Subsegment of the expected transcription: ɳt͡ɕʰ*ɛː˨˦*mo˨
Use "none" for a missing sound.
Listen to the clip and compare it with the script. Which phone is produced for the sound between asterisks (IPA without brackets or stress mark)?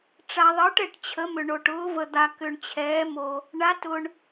ɛː˨˦